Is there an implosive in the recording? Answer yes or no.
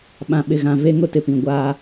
yes